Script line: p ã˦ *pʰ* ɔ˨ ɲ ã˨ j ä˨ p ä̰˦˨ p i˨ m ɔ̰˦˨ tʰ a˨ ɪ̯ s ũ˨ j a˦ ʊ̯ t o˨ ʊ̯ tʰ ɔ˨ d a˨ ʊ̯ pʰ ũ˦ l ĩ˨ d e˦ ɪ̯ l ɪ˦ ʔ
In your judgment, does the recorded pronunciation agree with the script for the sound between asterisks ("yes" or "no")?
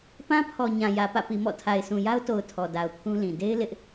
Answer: yes